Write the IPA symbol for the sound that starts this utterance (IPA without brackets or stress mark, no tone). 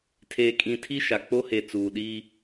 tʰ